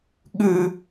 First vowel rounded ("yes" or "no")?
yes